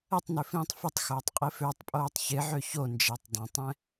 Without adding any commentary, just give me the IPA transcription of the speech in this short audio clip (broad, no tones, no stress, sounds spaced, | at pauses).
ə tˤ n ʏ f ĩː tˤ f ɪ tˤ x oː tˤ qʼ i f ø tˤ pʼ oː tˤ ç ɪ ʕ ø ç o n d͡ʒ ɛ tˤ dˤ œ̃ tˤ ɛ̃